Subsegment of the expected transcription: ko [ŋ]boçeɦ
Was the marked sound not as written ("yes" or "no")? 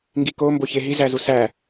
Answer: yes